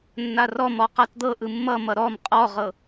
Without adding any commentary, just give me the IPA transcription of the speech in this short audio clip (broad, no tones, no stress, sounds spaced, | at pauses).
nː a r ɔ m ɔ q a t d̪ ɤ ʔ ɯ mː ʌ m ʌ ɾ ɔ m qʼ ɔ ʁ ɤ